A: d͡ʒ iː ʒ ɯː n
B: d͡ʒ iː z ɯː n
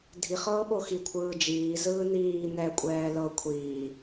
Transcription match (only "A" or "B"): B